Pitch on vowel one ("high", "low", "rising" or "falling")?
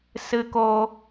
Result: low